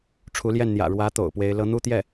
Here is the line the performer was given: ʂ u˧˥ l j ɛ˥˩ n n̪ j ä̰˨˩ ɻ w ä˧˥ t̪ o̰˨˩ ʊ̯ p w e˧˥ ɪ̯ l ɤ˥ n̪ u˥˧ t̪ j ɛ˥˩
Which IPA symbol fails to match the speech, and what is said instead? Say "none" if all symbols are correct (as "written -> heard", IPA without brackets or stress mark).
ʂ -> ʈ͡ʂʰ